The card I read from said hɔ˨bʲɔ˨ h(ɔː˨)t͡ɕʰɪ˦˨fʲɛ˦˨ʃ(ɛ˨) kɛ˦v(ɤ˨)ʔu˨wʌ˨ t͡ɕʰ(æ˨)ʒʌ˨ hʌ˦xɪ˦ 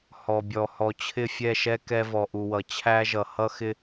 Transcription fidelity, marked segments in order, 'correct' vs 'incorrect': incorrect, incorrect, incorrect, incorrect

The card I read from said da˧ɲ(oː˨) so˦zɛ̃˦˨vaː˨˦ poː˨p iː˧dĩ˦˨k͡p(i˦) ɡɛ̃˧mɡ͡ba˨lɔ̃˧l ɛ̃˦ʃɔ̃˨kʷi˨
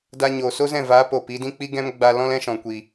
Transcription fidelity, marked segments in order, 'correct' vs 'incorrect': correct, correct

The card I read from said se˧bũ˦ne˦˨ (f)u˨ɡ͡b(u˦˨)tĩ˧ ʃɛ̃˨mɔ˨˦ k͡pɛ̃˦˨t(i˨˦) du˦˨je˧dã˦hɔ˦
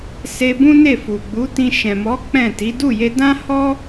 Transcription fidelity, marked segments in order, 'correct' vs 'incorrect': correct, incorrect, correct

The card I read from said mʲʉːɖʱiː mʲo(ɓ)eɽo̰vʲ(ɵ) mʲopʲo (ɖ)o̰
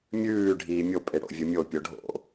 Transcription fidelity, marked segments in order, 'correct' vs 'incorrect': incorrect, correct, incorrect

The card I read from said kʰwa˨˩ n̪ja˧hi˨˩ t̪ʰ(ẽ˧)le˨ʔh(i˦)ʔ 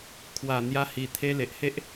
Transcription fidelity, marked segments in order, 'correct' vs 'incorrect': incorrect, incorrect

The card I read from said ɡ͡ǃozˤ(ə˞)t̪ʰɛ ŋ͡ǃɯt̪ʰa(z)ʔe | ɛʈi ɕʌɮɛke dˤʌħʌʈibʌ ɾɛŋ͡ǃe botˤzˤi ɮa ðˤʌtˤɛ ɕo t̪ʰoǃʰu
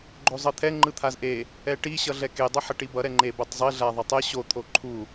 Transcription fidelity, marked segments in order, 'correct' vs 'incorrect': incorrect, correct

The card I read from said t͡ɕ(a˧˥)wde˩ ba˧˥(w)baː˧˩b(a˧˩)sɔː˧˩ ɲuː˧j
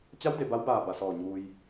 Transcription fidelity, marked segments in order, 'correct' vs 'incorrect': correct, correct, correct

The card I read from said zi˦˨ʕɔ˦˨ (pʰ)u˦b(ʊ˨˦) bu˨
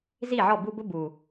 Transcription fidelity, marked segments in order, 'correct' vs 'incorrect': incorrect, incorrect

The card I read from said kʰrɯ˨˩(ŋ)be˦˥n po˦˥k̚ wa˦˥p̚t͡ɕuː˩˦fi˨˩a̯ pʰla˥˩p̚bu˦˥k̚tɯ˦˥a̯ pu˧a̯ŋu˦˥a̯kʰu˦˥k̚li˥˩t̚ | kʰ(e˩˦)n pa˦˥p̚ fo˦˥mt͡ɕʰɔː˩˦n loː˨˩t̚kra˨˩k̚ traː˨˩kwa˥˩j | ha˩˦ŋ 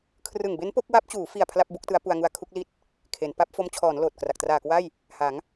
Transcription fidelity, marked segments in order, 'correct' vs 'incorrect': correct, correct

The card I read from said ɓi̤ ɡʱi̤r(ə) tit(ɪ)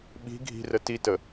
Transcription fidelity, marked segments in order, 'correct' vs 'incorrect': correct, incorrect

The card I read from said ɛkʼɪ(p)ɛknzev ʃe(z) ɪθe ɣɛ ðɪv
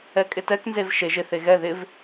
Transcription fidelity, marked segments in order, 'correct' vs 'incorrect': incorrect, incorrect

